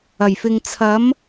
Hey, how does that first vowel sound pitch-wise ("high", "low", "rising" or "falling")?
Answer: low